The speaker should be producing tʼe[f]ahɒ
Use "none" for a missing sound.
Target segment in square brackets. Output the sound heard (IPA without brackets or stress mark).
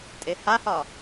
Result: h